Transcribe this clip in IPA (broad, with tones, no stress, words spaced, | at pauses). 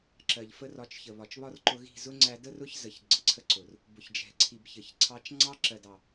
ǁɜ˨ʎfə˧rɒ˨˦t͡ʃçə˨ βɒ˨t͡ʃβɒ˦rǃʊ˧ɣi̤˦˨ zʊ˦ŋ͡ǀæ˧də˦rʊ˦ç zə˨ç ɡ͡ǀə˨ǀʰə˧ǀʊ˨r | bʊ˨çd͡ʒɛ̤˨ǀʰi˨b çə˨çǀʰɑ˧t͡ʃ ŋ͡ǀɑ˧ǁɜ˨dɑ˨